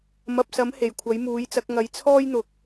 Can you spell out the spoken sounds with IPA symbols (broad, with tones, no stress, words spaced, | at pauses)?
mɐ˨p̚sɐ˨˥m he˨˩jkʷʰɐ˨˥jmuː˨˥jt͡sɐ˨˥k̚ ŋɐ˨˧jt͡sʰɔː˥jn̪ʊ˨˥k̚